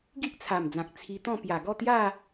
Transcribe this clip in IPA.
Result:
ɡ i˦ ʔ t͡sʰ a˨˩ m d͡z ã˨ k̚ t͡sʰ i˧ t̪ ɔ̃˥˧ p j a˨˩ ɡ ɔ˥˧ t̪ j a˥˧

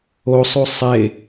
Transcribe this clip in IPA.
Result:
o sˤ u sˤ e

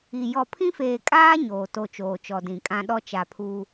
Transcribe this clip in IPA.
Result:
i˨ j ɔ˨ pʰ ĩ˦ f eː˨ kʼ aː˦ ɲ oː˨ t o˦˨ t͡ʃ oː˨ t͡ʃ ɔ˨ d ĩ˨ kʼ ã˦ ɗ ɔ˦ t͡ʃ a˨ pʰ u˦

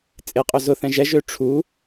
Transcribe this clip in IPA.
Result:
t͡sʼ ɪ qʼ ø z ʊ θ ɛ̃ ʒ ɛ ʒ ø ʈ͡ʂʰ u

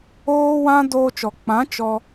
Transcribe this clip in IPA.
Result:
oː˦ w ã˦ d oː˧ t͡ʃ ɔ˨ k͡p ã˨˦ t͡ʃ ɔ˧

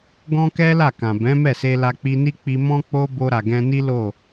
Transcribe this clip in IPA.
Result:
ɡ ɔ̃˦ k ɛ˦ l a˦˨ k ã˨ b ɛ̃˨˦ m ɛ˦˨ s e˧ l a˧ k͡p i˧ n i˦ k͡p i˧ m ɔ̃˦ k͡p o˧ b o˧ ɾ a˨ ɡ ɛ̃˧ n i˦ l o˦˨

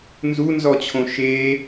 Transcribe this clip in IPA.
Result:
n z u n z ɔ t͡ɕʰ õ ʃ e

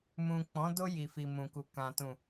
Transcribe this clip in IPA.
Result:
m ũ˨ k͡p ɔ̃˨˦ d o˧ j i˨ f i˨ m ũ˨ k u˨ k ã˨ t ũ˨

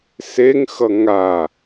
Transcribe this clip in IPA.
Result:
s e ŋ x ʌ ŋ a

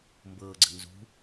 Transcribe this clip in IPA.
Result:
m b ɤː ɡ͡ǀ ə̤ n z ṳ

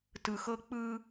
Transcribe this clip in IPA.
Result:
t ɯ˨ x ɤ˦ k͡p ɯ˦

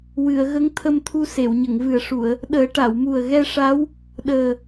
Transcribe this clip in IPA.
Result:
w ɨ˨˩˨ ə̯ ɣ ə˧˥ ŋ t̪ʰ ə˧ m t̪ʰ u˧ s e˨˩˨ w ɲ ə˨˩˨ ŋ v ɨ˨˩ ə̯ ʂ u˨˩˨ ə̯ | ɗ əː˨˩˦ ʈ a˨˩˨ w m u˨˩ ə̯ ɣ ɛ˧ ʂ a˧˥ w | ɗ əː˨˩

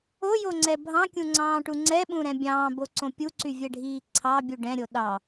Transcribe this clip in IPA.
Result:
o j o ŋ͡ǀ ɛ bʱ ɑ̃ kʲ ũ ŋ͡ǀ ɑ̃ː ʈ u ŋ͡ǀ ɛ ɓ ũ ɾ ɛ̃ bʲ ɑ̃ː b o ǀ õ pʲ u ǀ y vʲ ɛ ɖʱ iː ǀʰ ɑ bʲ u ɖ ɛ̃ ɾʲ o ɗ ɑ

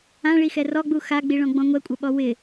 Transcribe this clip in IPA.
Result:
ã ɭ i x ɛ r ɔ ɡ͡b u x a ɡ͡b i ɭ ɔ̃ ɡ͡b ɔ̃ ŋʷ ɛ kʷʼ ə ɓ ɔ w ɪ

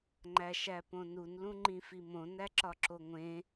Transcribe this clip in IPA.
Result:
ŋ͡ǃ æ ʃ æ p õ n u n l ũ ŋ͡ǃ ĩ f i m õ n æ ǁ ɒ ǁ o ŋʷ ẽ

